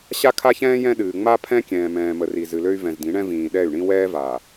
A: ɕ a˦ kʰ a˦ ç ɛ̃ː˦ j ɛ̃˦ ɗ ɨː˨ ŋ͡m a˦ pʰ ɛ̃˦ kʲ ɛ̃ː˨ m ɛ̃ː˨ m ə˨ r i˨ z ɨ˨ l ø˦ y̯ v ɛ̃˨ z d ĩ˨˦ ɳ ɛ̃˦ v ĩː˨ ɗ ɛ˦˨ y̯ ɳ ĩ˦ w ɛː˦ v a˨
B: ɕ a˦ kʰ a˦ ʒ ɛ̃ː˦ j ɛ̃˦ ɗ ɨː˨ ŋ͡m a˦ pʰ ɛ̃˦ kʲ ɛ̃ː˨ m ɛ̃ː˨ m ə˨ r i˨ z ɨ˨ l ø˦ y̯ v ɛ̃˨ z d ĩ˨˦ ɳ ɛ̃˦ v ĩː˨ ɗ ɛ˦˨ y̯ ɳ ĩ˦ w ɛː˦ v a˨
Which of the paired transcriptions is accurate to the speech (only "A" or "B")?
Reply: A